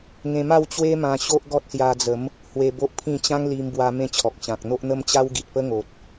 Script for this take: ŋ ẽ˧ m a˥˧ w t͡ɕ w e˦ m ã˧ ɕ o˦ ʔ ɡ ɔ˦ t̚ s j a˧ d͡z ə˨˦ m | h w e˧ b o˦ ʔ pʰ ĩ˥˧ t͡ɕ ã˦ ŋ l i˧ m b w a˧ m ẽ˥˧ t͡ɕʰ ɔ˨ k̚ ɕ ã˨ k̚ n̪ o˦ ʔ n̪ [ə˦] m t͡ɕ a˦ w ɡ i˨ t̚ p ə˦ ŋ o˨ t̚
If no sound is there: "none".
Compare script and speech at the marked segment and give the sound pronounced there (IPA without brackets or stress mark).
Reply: ə˦